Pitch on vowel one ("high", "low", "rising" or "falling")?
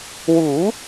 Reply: rising